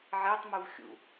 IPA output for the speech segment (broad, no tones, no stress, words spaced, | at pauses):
ʕetˤmuv xʲṵ